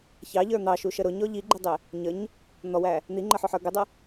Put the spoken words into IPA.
ç ɑ ʎ ə˞ n̪ ɑ ʃ u ʃ ə ɾ ʊ ɲ ɔ ʎ i ɡ͡ǃ i dˤ ɪ | ɲ ə ɲ | n̪ ɔ w æ | n̪ i ŋ͡ǃ ə ħ ʊ ħ ə˞ ɡ ɪ dˤ ə

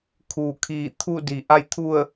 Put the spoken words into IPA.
kʰ uː˧˩ kʰ iː˧˩ t̪ʰ u˥˨ d i˧ ʔ a˥˨ j t̪ʰ u˥˨ ə̯

